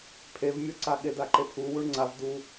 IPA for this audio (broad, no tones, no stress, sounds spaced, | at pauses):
pʰ e v mʲ ɔ ǀ a ɠ e d a ǃ e pʰ u w u ɳ ŋ͡ǀ a v d u